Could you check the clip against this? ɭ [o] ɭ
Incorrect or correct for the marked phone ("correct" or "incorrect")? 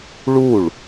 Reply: incorrect